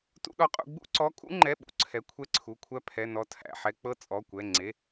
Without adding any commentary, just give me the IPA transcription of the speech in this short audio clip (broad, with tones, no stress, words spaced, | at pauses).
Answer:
tṵ˥ɗɔ˥qʼṵ˥ ɡ͡bṵ˥ǀɔ˧˥˧kʼṵ˥ŋ͡ǃɛ˧˥˧ ɓṵ˥ǀʰɛ˧˥˧kʷʰɛ˥ǀʰu˧˥˧ kʷʰæ˥pʰɛ˧˥˧ nɔ˥tʰæ̰˧˥˧ħɛ˥ k͡pɤ˥ t͡sʼɔ˧˥˧kʷɛ˧˥˧ ŋ͡ǀe˧˥˧